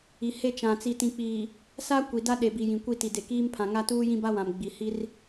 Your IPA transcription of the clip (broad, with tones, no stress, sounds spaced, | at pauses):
i˨ h e˦˨ t͡ʃ ã˨ t͡s i˨ t ĩ˨ k͡p iː˨ | s a˦ kʷ i˨ d a˦ ɗ e˨ b i˨ j ĩ˨ kʷ i˦˨ t i˨ d e˨ k iː˦ m pʰ ã˨ ŋ a˦ t uː˦ j ĩ˦ b a˦ w ã˨ m ɡ͡b i˨ h i˦ r